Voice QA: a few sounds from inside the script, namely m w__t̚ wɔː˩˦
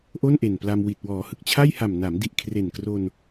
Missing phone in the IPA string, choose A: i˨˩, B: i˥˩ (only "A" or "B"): A